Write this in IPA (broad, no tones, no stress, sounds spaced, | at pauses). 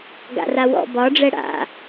ɡ a̰ r a w ɔ̰ b ɒ ɖ͡ʐ ɛ ɽ a̰